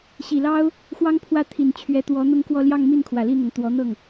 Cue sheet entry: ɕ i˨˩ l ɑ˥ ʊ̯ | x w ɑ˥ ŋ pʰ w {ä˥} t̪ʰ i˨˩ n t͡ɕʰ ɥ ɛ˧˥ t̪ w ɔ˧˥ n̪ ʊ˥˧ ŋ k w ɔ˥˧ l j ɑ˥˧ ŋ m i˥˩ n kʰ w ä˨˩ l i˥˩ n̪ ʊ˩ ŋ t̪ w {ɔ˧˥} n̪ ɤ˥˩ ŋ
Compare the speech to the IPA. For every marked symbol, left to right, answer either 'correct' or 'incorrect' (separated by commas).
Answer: incorrect, correct